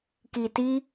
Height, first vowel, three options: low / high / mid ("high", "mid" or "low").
high